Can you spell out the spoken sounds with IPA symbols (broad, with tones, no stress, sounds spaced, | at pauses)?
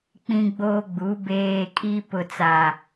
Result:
k͡p ĩ˦ ɡ͡b oː˦ ɡ͡b u˨˦ b eː˨ kʼ i˦ p ʊ˨ t͡s a˨